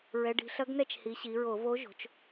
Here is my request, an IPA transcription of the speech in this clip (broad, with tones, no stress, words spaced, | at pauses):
ɹɛ˩˧ɖi̤˩˧ɬɐ˧˥ɡnɛ˥˩t͡ʃ hi˩˧ɕi˩˧ɹo˧˩˧vo˧˥ ʒo̤˩˧t͡ʃ